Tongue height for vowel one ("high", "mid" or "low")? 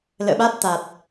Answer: mid